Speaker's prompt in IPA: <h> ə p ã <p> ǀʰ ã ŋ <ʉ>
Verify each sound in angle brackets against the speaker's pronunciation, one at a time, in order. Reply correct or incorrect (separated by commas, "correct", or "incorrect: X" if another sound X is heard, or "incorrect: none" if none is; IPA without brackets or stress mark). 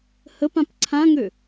correct, correct, incorrect: ø